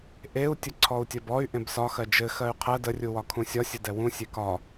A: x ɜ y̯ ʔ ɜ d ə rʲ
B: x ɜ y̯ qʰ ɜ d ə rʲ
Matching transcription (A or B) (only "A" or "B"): B